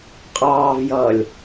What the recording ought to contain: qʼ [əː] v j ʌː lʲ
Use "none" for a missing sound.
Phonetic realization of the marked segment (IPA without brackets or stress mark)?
ɑː